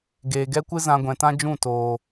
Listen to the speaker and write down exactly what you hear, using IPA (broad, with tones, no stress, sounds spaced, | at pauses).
ɡ eː˨ ɡ ɛ˦ kʷ ɨ˦ z ã˧ ɡʷ ɛ̃˨ t ã˦ d͡ʒ ũ˦˨ t oː˨